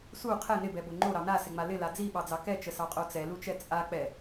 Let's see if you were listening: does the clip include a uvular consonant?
yes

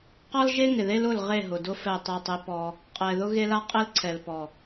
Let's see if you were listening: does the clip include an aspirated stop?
yes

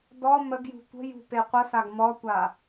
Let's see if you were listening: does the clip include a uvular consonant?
yes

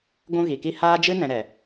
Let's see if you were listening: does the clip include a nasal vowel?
yes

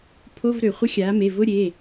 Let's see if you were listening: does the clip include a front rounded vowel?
yes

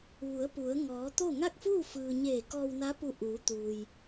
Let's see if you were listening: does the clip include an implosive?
no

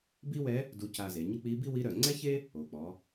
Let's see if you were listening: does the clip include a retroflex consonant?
no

